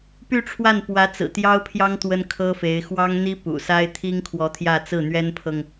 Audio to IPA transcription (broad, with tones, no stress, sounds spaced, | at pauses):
p y˥˧ ʈ͡ʂʰ w a˥˩ n p w ä˧˥ t͡s ɹ̩˨˩ t̪ j ɑ˥ ʊ̯ pʰ j ɑ˥ ŋ t̪ w ə˥ n kʰ ɤ˥ f e˧˥ ɪ̯ x w ɑ˥ ŋ n̪ i˥ p ṵ˨˩ s a˥ ɪ̯ t̪ʰ i˥ ŋ kʰ w ɔ˧˥ t̪ʰ j ä˥˧ t͡s ɹ̩˥˩ n̪ ɥ ɛ˥ n pʰ ɤ˨ ŋ